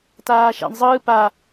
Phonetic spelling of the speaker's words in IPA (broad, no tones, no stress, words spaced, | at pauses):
taːʃa̰ɳzˤɯː pa